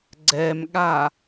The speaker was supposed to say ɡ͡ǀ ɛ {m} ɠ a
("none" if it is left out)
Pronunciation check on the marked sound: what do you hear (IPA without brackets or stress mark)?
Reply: m